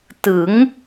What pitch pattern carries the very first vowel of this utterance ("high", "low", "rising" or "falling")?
rising